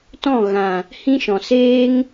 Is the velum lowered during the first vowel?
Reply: yes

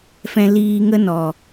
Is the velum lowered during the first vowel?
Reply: yes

